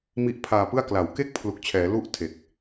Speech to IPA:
mi˦˥ʔpʰaː˧pɯ˥˩a̯ kla˩˦wke˥˩k̚ pʰlu˨˩k̚t͡ɕʰɛː˩˦ lu˦˥ʔ tʰe˨˩k̚

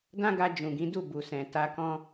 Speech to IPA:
dã˦ɡa˧d͡ʒũ˨ ɡĩ˨˦ du˦˨bu˨sɛ̃˨ ta˧kɔ̃˦

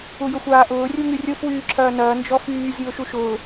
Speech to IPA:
ujʊxʷaːʔʊː rʲuŋyrʲʊfwyː ǁʰɐːnɐː nd͡ʒɔfyːzʲʊː ʃuʃʊː

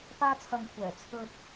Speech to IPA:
paː˥t͡sʰɐ˧ŋkʷʰɛː˨˩ t͡sʰɵ˧t̚

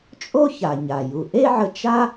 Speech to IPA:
t͡ʃʼo˥ça˩ ɲa˩ ju˩ʔe˥ʕə˧ t͡ʃa˥

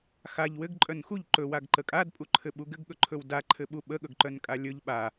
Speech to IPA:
xaʎ wɘɡǃʼœn xuʎ ǃɵwaɡǃə kʼadpʼuǃʰɘɓu ɡɘɡɠɵǃʰɵw daǃʰɘɓu ɓəɠɵɡǃœnkʼa lʲɵʎ ɓa

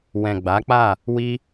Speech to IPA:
wɛ̃˨ ɡ͡ba˨˦k͡pa˦˨ | wi˧

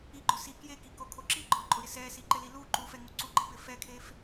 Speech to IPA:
iɡ͡ǃʊ si kjekikokʰo ǁiɡ͡ǃɔǃʼʊɾɪ sɛsiǃɪli lu ǃufɛŋu ǀuɡ͡ǃɪpɪ fɛkʰef

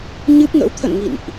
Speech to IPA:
ɲɨ˦˥p̚ŋə̰˧˥w t̪ʰə̰˧˨n ŋḭ˧˨nʔ

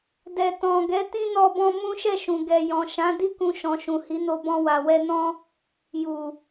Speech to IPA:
dɛ˨ tɔ̃˨ɡɛ˨˦ tĩ˦nɔ˧bɔ̃˧ mũ˦ʃɛ˦˨ʃũ˨ ɡɛ˨jɔ̃˨ ʃã˨˦ di˦ kũ˧ʃɔ̃˨ ʃũ˨hi˨˦no˧ bɔ̃˧wa˨wɛ˧nɔ̃˦ | ju˨

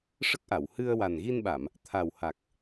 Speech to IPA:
ʂə˦˥k̚ʔa˨˩˨whɨ˧ə̯ wa˨˩nɣi˧nɓa˨˩˨m | t̪ʰa˨˩wha˨˩k̚

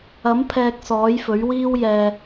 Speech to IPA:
ɐ˨˥mpʰɛː˨k̚ sɔː˨˥jfɵ˨˥ɥwiː˥w jɛː˨

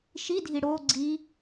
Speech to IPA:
ʃidʱi ɽo ɡ͡ǀi

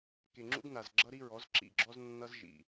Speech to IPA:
ke˨ŋ͡ǁṵ˦ɡna˨z ɡ͡ǁʌ˦ɾi˦ɹɔ˨˦z ǁḭ˨ɡ͡ǁɔ˦znːʌ˦z ʒḭ˨

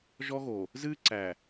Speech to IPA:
ʒɔ˦ɣo˨ | zɨ˦ǀæ˨

